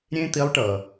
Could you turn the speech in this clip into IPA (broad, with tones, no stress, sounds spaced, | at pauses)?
ɾʲ ẽ˥ t̪ i˧˥ lˠ ʈ ʌː˩